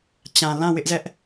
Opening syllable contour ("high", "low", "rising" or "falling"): low